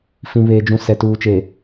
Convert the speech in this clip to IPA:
fĩ˨βeː˨d͡ʒũ˨ sɛ˨tuː˨t͡ʃe˨

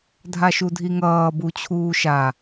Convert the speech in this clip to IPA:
dʱaʃudʱiŋʌː but͡ɕʰuːʃa

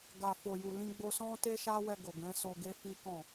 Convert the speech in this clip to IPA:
ɡa˨ fo˨ju˨lĩ˧ ɡ͡bo˧sɔ̃˦ te˦ʃa˦wɛ˧ ɡo˨ɡɛ̃˨˦so˧ ɡe˦fi˦kɔ̃˦˨

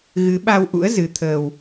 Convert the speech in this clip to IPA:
ɣɨ˨˦ɓa˧wʔṵ˧˥ə̯ zɨ˨˦ t̪ʰəː˧w

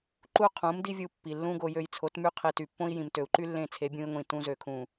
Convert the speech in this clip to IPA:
ǃu˦qʰũ˨˦mdi˦vʲu˧ pːi˨lːũ˦ɡo˧ jø˧jt͡sʰo˨˦tmy˦ qʰe˧ty˨pːõ˦i̯ jĩ˨mtø˨u̯ǃy˦ lːẽ˦˨t͡sʰe˨˦bʲũ˧i̯ ŋʷĩ˨tũ˧ zø˨kʰũ˨

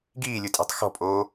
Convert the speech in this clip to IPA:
ɡiːlʲutʼa̤tˤ xɔ̤pʼoː

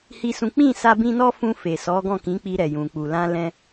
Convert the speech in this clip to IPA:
hi˦sũ˦ k͡pĩ˦˨sa˧bĩ˧ nɔ˦fũ˧fe˨ sɔ˨˦ɡɔ̃˦˨kĩ˨˦k͡pi˧ ɾɛ˨jũ˨k͡pu˨lã˧ lɛ̃˧

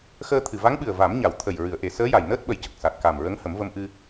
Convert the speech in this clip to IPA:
xəː˧t̪ʰɨ˨˩ va˧˥ŋɓɨ˨˩ə̯ va˨˩˦mɲa˨˩˨wt̪ʰə˨˩j ɹɨ˨˩˨ə̯ʔe˨˩˨səː˧˥ja˨˩j nəː˦˥t̚ɓə˨˩˦jcə˨˩k̚ sa˨˩t̚ ka˨˩mɹə˧˥ŋ hə˨˩˦mvə˧mʔɨ˧

